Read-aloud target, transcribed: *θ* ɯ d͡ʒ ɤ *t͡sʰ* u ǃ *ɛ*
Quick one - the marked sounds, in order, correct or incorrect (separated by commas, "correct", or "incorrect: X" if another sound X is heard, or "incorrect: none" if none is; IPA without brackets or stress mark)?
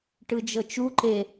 incorrect: ʈ, incorrect: t͡ʃ, incorrect: e